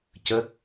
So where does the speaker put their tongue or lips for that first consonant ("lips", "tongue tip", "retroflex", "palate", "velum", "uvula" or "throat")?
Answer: palate